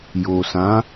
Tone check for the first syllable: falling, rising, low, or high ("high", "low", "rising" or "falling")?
low